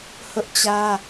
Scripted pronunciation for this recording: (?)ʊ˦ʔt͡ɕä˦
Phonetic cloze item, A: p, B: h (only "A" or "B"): B